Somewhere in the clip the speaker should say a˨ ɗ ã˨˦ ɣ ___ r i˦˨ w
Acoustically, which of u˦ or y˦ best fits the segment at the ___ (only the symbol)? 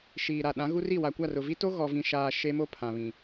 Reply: u˦